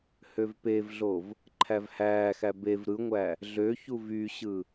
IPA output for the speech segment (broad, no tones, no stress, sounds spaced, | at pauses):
h ø v p e v ɮ o v | ǃʰ æ v h æː x æ b e v ɾ ɯ ŋʷ æ | ɮ ø ç u v y ɕ ɯ